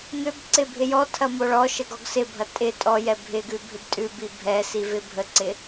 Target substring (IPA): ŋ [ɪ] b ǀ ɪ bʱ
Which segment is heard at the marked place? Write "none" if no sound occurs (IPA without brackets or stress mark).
ʏ